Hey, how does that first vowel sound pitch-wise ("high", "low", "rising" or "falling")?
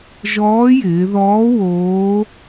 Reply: rising